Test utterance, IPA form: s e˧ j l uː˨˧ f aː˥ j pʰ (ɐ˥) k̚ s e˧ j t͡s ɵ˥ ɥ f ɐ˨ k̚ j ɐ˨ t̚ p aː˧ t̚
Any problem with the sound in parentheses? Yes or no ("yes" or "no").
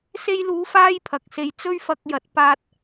yes